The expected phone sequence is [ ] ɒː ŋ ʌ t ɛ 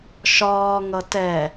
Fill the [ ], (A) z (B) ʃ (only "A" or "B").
B